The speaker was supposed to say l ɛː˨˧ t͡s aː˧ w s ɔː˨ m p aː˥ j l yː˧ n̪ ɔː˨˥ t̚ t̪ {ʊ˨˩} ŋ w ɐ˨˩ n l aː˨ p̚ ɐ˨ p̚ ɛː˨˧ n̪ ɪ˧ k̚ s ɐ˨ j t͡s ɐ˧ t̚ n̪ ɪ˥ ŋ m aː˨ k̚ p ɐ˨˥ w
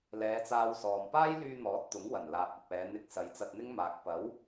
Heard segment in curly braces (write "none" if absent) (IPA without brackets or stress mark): ʊ˨˥